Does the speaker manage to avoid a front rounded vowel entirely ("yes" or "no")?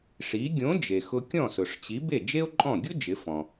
yes